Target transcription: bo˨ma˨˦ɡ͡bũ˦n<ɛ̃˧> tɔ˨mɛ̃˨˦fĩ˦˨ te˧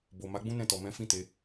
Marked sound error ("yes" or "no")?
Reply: yes